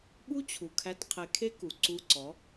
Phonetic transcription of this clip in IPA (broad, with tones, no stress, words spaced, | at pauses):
ɓu˦t͡ɕʰu˨kʰæ˧t qʰe˧kʰe˦ku˨ ǀu˧ǀɔ˨˦